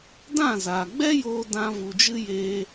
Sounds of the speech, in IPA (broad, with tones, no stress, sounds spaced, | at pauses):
d ã˦˨ z aː˨ ɡ͡b ɛ˦ j oː˧ d ã˧ v u˨ d͡ʒ ɨ˦ j eː˧